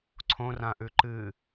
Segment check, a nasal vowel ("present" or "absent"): present